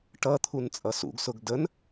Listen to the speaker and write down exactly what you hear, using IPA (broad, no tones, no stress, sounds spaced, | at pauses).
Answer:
ʈ ʌ t̪ʰ u n t͡sʼ ʌ s ṵ ɡ s ʊ ɡ d ə n